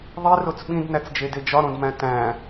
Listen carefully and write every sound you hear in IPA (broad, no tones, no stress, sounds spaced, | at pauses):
ðˤ i r o t͡s ɓ ĩ d n æ t͡s d͡ʒ e d e d͡ʒ ɒ ɾ õ d m æ̃ t æ̃